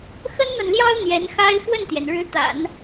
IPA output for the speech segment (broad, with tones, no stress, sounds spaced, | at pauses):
x ə˥ n n̪ a˨ n l j ɑ˥ ʊ̯ n̪ j ɛ˧˥ n x a˥ ɪ̯ f w ə˥˩ n t̪ j ɛ˩ n ɻ ɻ̩˧˥ t̪ a̰˨˩˦ n